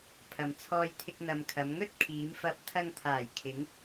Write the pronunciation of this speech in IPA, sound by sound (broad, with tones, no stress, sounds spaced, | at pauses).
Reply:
pʰ ɐ˨ m t͡sʰ ɔː˧ j t̪ʰ ɪ˧ k̚ n̪ ɐ˨ m kʰ ɐ˨˧ m ŋ ɵ˥ t̚ kʰ iː˨˧ m f ɐ˧ p̚ t̪ʰ ɐ˧ ŋ t̪ʰ aː˨˩ j kʰ ɪ˨˧ ŋ